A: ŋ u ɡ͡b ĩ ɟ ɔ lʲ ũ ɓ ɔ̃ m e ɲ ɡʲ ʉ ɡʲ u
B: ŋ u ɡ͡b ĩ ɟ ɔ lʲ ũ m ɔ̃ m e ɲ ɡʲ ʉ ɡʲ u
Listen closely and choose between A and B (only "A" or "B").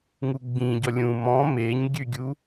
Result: B